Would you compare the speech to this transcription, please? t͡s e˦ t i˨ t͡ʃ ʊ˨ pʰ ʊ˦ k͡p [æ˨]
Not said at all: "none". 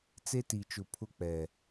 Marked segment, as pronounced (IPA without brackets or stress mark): ɛ˨